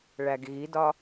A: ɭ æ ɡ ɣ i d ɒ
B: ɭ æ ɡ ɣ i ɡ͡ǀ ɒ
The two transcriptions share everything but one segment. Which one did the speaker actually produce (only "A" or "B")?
A